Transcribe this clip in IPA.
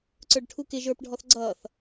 ǀ ə˞ ɖ ʈʰ u k ɪ ʒ ə˞ p ɖʱ ɔ θ ɡ͡ǀ ʌː θ

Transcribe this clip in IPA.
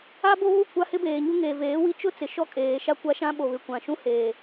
a˦ b o˦ β u˦˨ kʷ a˦ h ɪ˦ b eː˨ ɲ u˦ ŋ eː˨ v eː˨˦ w i˦ t͡ʃ ʊ˦ t͡s ɪ˨ ʃ ɔ˦ kʼ eː˨ ʃ a˦ kʷ a˦ ʃ ã˦ ɓ o˨ β ɪ˨ kʷ ã˨ ʃ ũ˦ h eː˨

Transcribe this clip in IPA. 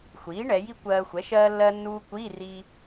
xʷ iː˩˥ ɳ ɛ˩˧ j i˥ kʷ ɜː˧ xʷ ɛ˩˥ ʃ ɜː˧ lː ɜ˧ nː uː˧ kʷ iː˧˥˧ r iː˧

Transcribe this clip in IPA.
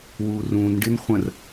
w uː r ũː n ɖ ɪ n χʷ ə̃ r

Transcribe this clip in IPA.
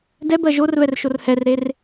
d ɛ b ɜ ʒ o r v ɛ r ʃ o r h ɛ r ɾ e r

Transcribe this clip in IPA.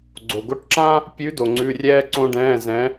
ɡ͡ǀ o˩ ɡ o˧ ʈ ǁ ã˥ | pʲ ʉ˨˥ d o˩ ŋ͡ǀ ʉ˩˧˩ rʲ ɛː˧ ǀ õ˧ ɖ ɛ̃ː˩˧˩ z ɛ̃˨˥

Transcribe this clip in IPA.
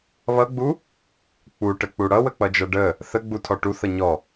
β ʌ ɡ͡b u | k͡p u ʈ ə k͡p u ɽ ʌ w ə k͡p ʌ d͡ʒ ʌ ɖ ə | θ ə ɡ͡b u tʰ ɔ ʈ u θ ʌ ɲ ɔ

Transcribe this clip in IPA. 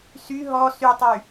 s y ɦ ɔ s y tˤ y

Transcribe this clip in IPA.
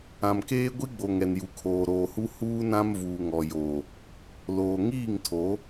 ã˨ m k eː˦ ɡʷ i˦ ɡ͡b o˨ ŋ ɛ˨ n j u˨ kʰ oː˨ ɾ oː˨ h u˦ h uː˦ n ã˦ m v uː˨ ŋ ɔ˨ j o˨ | l oː˨ ŋ iː˦˨ ŋ tʰ o˨˦

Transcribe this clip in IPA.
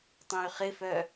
tˤ õ y̯ χ ɪ f œ

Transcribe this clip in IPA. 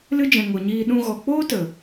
l ɨ˦ d͡ʒ ɛ̃˨ ŋ o˨ ɲ iː˧ ɗ ũ˧ ɣ ɔ˨ k͡p oː˦ t ə˨

